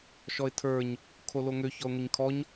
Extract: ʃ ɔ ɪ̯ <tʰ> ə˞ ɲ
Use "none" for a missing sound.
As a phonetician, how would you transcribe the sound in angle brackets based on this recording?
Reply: tʰ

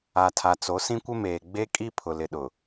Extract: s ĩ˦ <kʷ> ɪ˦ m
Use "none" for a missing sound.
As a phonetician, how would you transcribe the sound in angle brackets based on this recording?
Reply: kʷ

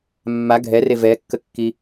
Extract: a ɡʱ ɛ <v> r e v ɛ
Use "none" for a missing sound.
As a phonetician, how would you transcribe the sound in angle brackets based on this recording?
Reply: none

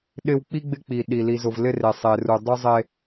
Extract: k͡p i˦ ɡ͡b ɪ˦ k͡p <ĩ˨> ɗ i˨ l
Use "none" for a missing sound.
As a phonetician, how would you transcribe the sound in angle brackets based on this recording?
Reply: i˨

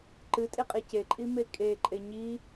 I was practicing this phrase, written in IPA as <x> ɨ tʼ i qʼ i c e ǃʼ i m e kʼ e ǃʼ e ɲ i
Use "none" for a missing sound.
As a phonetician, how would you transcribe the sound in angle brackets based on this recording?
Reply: ǃ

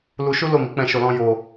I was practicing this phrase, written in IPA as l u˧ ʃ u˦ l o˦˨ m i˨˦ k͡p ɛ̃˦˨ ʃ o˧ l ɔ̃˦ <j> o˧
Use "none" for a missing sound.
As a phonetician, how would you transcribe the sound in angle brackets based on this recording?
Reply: j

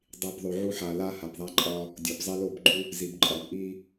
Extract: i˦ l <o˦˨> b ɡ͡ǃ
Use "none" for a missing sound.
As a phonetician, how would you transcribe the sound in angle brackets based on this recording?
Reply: o˦˨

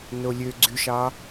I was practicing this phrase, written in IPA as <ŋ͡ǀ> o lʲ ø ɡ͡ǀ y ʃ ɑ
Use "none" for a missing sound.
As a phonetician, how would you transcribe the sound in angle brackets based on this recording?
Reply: n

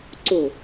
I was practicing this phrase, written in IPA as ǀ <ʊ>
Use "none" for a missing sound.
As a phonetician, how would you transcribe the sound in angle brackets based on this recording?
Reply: ʊ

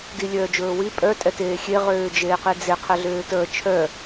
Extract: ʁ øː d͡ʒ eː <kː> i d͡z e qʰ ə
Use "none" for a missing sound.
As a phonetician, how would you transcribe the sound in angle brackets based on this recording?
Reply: q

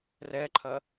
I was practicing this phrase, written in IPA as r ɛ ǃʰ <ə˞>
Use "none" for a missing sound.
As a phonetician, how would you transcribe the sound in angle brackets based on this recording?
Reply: ɐ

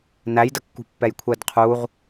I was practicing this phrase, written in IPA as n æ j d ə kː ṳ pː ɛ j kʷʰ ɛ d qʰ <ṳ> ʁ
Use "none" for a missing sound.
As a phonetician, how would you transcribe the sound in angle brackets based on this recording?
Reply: u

